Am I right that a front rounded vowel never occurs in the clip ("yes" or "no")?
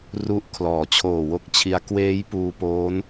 yes